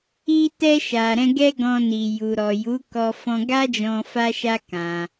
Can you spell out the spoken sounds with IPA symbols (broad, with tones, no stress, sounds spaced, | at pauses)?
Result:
i˧ t ɛ˧ ʃ a˨ ɾ ɛ̃˧ ɡ ɛ˦ ɡ ɔ̃˧ n i˨ j u˨ ɾ ɔ˨ j u˨˦ k ɔ˧ f ɔ̃˧ ɡ a˦ d͡ʒ ɔ̃˧ f a˦ ʃ a˦ k ã˧